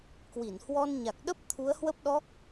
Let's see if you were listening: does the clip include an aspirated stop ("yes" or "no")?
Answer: yes